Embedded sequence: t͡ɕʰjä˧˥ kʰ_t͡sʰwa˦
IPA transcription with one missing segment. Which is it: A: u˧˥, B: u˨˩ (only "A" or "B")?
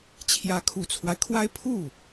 B